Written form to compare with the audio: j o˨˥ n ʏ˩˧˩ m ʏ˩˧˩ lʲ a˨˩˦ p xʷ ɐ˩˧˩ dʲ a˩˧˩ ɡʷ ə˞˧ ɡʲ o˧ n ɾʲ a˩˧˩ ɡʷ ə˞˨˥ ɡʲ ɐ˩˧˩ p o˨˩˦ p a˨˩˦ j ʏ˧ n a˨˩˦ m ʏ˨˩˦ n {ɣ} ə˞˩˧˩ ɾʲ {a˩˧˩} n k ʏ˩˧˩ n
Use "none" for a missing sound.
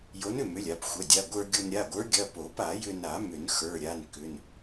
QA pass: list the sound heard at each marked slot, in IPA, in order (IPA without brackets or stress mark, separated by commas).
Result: x, a˩˧˩